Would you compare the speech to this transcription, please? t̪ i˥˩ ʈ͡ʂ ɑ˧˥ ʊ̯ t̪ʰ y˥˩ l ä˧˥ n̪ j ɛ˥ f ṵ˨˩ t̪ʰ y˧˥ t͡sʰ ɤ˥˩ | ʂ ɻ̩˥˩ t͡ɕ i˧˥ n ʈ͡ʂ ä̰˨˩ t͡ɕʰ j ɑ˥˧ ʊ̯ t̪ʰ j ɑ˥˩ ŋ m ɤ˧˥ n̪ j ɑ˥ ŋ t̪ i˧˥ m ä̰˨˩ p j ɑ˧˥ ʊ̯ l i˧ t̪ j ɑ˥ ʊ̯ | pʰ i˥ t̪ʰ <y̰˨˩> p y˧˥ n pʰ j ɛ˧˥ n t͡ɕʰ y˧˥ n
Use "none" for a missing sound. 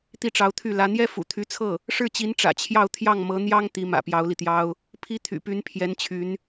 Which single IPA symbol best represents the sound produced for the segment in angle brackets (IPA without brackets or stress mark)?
y̰˨˩